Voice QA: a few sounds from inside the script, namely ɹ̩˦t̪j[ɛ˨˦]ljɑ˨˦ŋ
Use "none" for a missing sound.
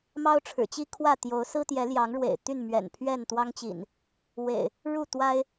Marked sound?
ɛ˨˦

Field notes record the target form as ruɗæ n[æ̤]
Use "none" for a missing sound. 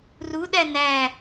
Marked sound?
æ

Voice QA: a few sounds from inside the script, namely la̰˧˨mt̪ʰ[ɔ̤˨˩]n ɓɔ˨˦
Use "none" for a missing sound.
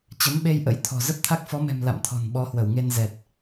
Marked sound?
ɔ̤˨˩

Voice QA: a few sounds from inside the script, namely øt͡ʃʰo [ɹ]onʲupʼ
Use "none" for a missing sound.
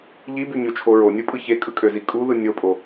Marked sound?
ɹ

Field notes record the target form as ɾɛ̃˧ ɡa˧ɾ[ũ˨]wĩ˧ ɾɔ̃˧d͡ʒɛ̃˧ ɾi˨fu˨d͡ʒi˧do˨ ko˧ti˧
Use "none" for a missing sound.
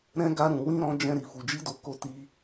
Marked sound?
ũ˨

